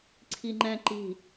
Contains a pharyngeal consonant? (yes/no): no